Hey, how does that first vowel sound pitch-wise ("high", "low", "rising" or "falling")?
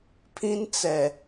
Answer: high